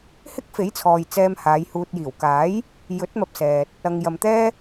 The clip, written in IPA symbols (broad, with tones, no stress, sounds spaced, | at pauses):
h ɪ˥ k̚ f e˨˥ j t͡sʰ ɔː˨ j t͡s ɛː˧ m h aː˨˧ j h uː˨ t̚ j iː˨˩ w k aː˨˥ j | j ɵ˨˥ t̚ m ɐ˧ p̚ s ɛː˨ t̚ | ɐ˨ ŋ j ɐ˨ m t̪ ɛː˥